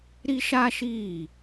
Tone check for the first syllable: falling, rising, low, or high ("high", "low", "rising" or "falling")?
high